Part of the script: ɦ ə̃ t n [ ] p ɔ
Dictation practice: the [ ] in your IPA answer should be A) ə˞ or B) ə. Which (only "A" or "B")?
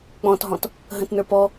A